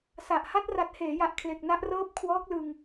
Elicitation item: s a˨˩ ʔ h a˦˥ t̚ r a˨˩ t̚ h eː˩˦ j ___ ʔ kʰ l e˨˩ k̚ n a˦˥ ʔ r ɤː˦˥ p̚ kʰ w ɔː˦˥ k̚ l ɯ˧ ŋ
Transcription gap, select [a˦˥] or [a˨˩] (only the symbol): a˨˩